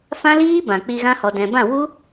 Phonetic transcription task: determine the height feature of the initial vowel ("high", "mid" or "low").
low